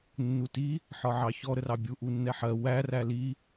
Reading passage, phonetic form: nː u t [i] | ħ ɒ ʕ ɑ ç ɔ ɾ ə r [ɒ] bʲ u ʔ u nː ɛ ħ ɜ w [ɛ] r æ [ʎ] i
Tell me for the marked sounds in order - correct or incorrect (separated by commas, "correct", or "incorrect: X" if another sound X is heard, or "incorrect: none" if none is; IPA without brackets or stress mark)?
correct, incorrect: ɑ, incorrect: æ, incorrect: l